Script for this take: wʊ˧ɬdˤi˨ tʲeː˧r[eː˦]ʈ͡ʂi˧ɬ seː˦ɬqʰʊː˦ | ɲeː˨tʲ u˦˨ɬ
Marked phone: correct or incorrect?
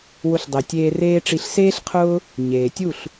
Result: correct